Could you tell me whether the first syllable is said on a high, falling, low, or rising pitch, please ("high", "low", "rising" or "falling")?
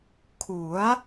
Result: rising